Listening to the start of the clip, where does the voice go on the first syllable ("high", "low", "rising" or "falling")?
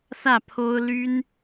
falling